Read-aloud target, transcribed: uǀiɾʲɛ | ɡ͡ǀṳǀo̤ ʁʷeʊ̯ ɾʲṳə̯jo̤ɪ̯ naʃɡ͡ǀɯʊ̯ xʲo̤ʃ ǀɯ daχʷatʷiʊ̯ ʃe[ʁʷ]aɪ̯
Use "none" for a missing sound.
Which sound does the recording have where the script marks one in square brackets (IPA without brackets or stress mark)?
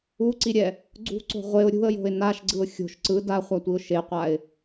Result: qʷ